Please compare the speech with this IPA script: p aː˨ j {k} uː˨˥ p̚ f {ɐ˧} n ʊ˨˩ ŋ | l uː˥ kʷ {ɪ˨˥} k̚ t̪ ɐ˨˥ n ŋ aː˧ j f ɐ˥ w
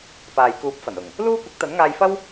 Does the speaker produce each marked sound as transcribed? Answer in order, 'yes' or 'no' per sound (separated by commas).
yes, no, yes